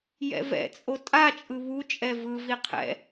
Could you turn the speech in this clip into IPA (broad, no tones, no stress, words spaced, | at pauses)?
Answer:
jɛ̰vɛ̰t͡sʼo tʼat͡ʃʼɯ βu t͡ʃʼɛvɯvi qʰɛ̰